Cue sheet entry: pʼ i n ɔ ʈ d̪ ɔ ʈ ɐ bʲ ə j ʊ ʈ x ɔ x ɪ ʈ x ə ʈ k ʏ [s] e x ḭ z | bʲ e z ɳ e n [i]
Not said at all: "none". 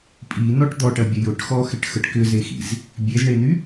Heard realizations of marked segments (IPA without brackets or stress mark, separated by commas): z, y